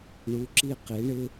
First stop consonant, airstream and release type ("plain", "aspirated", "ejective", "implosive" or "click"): click